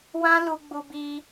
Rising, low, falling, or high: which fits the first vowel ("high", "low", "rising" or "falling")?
high